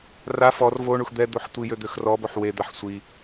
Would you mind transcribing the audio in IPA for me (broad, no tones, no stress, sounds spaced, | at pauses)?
r a f ɔ r v o ɳ u x d̪ ɛ d̪ o ħ tʷ i j ø d̪ ø x r ɔ b o ħ w e d̪ a ħ sʷ i